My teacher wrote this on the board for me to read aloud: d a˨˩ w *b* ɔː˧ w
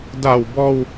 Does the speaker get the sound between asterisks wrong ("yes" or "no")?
no